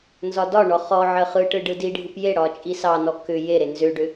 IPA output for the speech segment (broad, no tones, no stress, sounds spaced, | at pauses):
n z ɒ d ɒ ɳ ɔ χ ɔ ʕ ə χ ɯ ʈ ɯ ɖ ɯ d i ɖʱ ɯ p j e ɽ ɒ t͡ʃʼ i s ɑ n ɔ k ʏ j e ɾ e n z ʏ ɖ ʏ